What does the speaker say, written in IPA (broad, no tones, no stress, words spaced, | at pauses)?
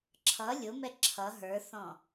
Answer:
ǁʰʌ lʲʊmɛ ǁʰʌ ɦə˞θɔ̃